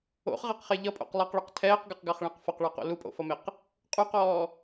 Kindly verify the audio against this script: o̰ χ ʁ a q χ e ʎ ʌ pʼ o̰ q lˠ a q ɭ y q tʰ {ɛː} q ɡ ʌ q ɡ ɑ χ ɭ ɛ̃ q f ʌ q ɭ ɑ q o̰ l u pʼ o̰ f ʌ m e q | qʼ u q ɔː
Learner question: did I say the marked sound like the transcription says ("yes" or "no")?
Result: yes